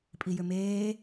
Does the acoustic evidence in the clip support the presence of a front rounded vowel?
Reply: yes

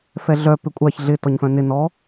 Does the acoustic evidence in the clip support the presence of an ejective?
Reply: yes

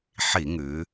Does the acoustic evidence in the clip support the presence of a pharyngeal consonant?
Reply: yes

